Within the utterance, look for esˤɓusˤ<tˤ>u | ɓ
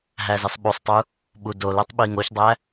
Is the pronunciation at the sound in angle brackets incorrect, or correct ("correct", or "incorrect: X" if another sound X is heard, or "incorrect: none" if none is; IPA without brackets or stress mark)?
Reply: correct